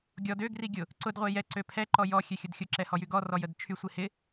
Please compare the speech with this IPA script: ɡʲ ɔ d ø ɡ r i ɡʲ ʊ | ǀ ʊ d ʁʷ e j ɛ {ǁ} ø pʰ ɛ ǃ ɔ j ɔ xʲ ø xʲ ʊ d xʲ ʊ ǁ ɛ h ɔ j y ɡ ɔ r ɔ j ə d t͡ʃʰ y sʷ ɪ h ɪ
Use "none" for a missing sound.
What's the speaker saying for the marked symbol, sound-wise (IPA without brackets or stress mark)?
ǀ